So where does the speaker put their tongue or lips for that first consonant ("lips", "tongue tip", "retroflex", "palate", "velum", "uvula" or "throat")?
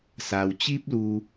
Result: tongue tip